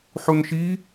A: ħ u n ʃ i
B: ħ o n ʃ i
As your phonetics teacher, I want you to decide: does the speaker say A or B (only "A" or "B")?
A